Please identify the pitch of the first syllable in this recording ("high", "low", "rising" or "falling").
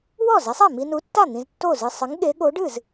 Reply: falling